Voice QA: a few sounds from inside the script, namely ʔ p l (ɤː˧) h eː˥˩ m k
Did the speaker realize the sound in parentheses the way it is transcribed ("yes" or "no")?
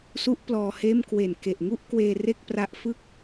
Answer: no